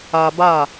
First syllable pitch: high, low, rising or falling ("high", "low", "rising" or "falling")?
low